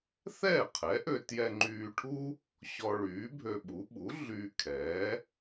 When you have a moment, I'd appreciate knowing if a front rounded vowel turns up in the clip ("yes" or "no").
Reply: yes